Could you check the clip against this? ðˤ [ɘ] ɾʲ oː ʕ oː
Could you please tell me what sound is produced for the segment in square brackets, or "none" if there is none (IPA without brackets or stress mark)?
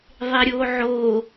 e